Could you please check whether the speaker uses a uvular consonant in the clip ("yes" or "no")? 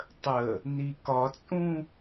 no